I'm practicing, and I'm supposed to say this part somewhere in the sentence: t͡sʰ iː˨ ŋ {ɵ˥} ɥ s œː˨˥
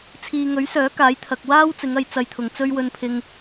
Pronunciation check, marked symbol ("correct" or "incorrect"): incorrect